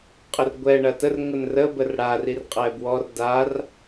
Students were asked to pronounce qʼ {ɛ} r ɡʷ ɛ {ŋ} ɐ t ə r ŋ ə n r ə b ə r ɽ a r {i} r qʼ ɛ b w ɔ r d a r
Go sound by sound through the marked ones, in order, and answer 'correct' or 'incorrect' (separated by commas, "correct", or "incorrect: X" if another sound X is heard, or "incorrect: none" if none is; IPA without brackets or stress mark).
incorrect: ə, incorrect: ɳ, correct